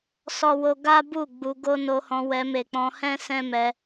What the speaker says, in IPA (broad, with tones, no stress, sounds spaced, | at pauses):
s ɔ˦ w o˦ ɡ a˦ b u˦˨ ɡ͡b u˧ ɡ o˦ n o˧ h ɔ̃˧ w ɛ˧ m e˨ k͡p ɔ̃˧ h ɛ̃˦ s ɛ̃˦ m ɛ˧